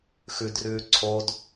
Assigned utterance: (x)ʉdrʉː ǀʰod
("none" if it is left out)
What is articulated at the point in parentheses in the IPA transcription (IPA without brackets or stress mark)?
x